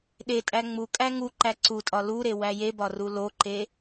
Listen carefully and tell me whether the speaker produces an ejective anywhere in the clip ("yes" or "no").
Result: yes